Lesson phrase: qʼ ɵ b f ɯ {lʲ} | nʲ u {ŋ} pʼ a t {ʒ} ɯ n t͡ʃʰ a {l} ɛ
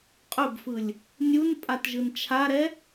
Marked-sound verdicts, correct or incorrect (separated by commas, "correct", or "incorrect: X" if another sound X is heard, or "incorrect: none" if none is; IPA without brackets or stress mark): correct, incorrect: n, correct, incorrect: ɾ